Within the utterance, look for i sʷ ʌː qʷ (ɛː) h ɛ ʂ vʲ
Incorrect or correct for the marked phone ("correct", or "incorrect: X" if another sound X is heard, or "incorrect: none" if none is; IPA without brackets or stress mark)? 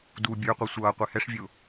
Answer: incorrect: ɛ